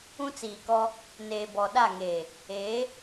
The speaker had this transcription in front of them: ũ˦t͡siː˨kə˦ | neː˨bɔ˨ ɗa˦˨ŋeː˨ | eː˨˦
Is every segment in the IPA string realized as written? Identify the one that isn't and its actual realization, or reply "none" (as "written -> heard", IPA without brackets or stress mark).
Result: ə˦ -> ɔ˦